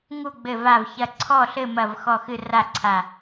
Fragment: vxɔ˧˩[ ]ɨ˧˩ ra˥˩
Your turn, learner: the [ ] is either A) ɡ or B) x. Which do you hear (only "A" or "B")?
B